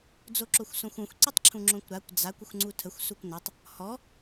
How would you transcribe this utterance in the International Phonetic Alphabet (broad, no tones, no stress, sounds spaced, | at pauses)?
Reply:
d͡z o ǁ o xʷ s õ xʷ õ xʷ ǀ i tˤ ǁʰ ũ ŋ͡ǁ õ kʷ ɾ a kʷ d͡z a kʷ ə xʷ ŋ͡ǀ u tʰ ə xʷ s u kʷ n ɤ tˤ | h ɔ